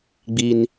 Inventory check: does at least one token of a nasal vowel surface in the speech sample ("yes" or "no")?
no